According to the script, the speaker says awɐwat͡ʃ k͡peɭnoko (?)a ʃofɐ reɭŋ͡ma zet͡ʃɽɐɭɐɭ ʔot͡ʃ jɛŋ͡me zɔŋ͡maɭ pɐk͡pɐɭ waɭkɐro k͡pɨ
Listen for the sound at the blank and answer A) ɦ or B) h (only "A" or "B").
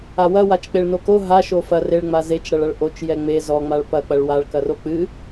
A